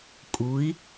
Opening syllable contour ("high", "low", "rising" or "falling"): rising